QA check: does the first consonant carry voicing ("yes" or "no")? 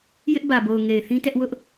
yes